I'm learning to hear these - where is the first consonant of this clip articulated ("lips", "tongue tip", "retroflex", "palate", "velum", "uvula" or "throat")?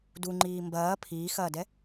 tongue tip